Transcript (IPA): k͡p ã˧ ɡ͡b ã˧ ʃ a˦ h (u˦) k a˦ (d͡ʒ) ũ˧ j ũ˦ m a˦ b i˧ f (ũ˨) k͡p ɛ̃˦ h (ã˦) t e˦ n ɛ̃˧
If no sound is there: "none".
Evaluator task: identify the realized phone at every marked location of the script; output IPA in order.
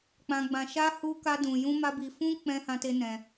u˦, d, ũ˦, ã˦

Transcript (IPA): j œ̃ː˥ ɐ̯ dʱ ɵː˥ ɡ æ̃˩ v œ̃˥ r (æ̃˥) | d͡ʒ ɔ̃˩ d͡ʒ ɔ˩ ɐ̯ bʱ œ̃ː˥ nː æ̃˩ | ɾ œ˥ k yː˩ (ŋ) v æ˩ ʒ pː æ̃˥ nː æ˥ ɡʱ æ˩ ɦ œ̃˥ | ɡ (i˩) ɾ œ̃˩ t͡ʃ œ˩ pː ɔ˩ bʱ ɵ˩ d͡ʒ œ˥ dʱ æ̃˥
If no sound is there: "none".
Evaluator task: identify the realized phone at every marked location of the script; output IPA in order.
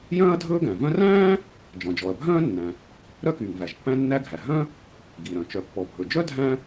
æ̃ː˥, ŋ, i˩

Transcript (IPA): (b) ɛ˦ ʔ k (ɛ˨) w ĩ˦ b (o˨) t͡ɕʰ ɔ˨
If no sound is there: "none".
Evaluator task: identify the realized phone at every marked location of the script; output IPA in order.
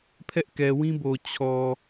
pʰ, ɛ˨, o˨

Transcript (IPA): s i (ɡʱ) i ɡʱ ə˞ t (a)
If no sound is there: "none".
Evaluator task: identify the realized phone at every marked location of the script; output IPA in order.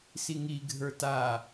ŋ, a

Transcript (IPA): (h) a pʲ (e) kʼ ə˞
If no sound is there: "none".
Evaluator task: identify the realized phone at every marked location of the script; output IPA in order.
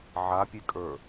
ʕ, e

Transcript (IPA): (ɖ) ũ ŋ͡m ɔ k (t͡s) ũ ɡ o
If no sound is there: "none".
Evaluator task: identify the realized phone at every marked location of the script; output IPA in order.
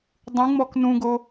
dˤ, n

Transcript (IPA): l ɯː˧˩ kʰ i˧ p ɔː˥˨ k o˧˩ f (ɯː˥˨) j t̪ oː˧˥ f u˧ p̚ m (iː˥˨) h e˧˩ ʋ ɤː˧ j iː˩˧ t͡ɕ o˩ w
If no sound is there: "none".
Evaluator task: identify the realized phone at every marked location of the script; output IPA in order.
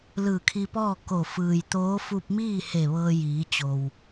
ɯː˩, iː˥˨

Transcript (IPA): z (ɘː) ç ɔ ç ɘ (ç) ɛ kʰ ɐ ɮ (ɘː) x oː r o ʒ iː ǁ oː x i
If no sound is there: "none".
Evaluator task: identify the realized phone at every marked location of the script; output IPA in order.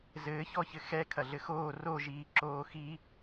ɘː, x, ɘ

